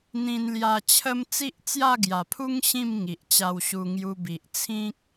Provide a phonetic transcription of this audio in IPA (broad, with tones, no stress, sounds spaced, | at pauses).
n̪ ĩ˧ n l j a˧ t͡ɕʰ ə˧ m t͡s i˦ ʔ t͡s j a˥˧ ɡ j a˨˩ pʰ u˦ ŋ ɕ ĩ˥˧ m ŋ i˨ ʔ t͡ɕ a˧ w ɕ u˧ ŋ j u˧ b i˨ ʔ t͡sʰ ĩ˦ k̚